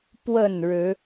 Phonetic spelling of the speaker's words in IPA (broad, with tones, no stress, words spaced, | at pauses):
pwə˥˨nɻɻ̩˨˦